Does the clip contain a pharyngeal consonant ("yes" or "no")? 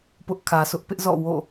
no